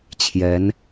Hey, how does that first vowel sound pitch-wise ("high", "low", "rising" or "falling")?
rising